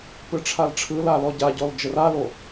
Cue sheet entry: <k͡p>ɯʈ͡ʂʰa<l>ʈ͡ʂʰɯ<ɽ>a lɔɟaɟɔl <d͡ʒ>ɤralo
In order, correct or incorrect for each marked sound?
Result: incorrect: p, correct, incorrect: l, correct

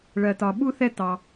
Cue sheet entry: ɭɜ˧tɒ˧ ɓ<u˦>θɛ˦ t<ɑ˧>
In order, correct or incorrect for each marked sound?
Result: correct, correct

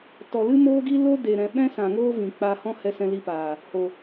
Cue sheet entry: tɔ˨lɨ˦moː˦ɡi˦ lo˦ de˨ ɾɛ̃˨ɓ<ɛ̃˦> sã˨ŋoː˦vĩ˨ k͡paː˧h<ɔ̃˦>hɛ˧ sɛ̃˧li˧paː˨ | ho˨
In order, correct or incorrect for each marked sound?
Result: correct, correct

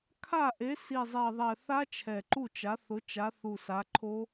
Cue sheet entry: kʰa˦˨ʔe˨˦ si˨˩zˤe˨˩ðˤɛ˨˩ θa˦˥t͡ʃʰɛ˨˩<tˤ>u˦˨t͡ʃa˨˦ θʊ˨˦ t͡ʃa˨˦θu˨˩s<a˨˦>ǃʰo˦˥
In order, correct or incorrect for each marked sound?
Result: incorrect: ǃ, correct

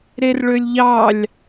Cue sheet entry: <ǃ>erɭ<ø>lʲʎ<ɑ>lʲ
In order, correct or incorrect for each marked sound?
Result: incorrect: ɾ, correct, correct

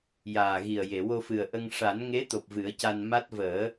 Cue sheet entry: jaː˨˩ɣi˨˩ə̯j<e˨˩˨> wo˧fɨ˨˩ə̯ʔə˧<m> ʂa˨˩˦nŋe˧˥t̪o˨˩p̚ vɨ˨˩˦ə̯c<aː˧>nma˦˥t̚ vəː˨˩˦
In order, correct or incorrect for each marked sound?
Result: correct, incorrect: ŋ, incorrect: a˧

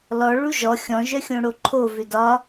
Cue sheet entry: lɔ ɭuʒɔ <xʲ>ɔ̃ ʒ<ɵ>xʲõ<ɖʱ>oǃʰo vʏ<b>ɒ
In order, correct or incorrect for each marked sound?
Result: correct, incorrect: œ, incorrect: ɽ, incorrect: d

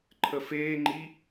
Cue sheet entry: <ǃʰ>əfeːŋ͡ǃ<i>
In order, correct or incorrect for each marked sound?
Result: correct, correct

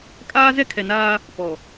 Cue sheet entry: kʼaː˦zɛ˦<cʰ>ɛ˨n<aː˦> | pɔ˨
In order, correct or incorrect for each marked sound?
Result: incorrect: kʰ, correct

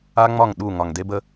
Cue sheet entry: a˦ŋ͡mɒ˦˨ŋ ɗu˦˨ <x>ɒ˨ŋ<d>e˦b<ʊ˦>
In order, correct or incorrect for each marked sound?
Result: incorrect: ŋ, correct, incorrect: ə˦

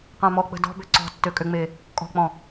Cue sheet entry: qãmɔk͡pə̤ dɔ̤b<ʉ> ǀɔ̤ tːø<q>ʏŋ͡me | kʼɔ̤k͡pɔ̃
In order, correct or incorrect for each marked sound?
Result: incorrect: ø, incorrect: kʼ

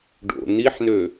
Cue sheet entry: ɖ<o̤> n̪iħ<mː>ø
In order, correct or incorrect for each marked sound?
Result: incorrect: o̰, incorrect: n̪

